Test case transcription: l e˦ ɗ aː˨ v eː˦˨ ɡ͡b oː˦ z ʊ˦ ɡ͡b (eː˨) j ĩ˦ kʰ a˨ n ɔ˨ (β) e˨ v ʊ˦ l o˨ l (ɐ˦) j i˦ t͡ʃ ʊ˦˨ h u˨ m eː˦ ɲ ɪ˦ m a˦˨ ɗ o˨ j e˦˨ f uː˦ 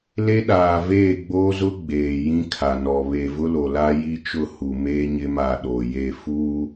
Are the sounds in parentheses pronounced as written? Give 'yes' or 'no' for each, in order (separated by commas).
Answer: yes, yes, no